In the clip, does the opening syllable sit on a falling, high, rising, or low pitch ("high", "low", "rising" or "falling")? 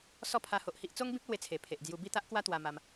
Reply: falling